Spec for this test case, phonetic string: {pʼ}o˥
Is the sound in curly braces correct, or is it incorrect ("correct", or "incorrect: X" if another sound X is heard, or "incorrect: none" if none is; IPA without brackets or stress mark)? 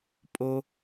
correct